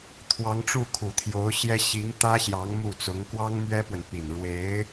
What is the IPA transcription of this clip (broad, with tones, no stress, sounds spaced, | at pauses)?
t̪ʰ w ɑ˧˥ ŋ ʈ͡ʂ u˥˩ kʰ u˨˩ t̪ʰ j o˧˥ ʊ̯ ɕ j ɛ˥ ɕ i˧˥ ŋ t̪ ä˥ ɕ j ɑ˧˥ ŋ m u˥˩ t͡s ʊ˧˥ ŋ k w ɑ˥ ŋ m ɥ ɛ˥ p w ə˨ n p i˨˩ n ɻ w e˧˥ ɪ̯